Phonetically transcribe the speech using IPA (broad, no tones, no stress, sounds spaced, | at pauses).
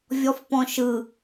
vʲ ɔ f p ɔ̃ ʃ ɯ